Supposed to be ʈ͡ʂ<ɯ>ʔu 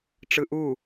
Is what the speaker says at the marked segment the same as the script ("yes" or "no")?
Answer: yes